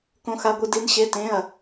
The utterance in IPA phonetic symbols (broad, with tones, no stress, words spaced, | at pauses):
kõ˦˥xa˦˥ɡʷɨ˦˥ di˦˥nɕe˦˥tẽ˧˥˧ɐ̯